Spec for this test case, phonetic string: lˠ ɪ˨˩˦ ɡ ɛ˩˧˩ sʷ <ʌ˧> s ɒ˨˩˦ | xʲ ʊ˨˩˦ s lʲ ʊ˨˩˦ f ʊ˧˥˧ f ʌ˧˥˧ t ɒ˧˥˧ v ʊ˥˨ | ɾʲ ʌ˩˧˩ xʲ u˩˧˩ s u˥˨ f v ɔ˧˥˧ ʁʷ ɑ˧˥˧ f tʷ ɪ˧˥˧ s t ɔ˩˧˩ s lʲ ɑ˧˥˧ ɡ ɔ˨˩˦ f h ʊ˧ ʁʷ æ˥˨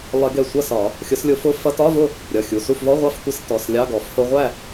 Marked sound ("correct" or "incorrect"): incorrect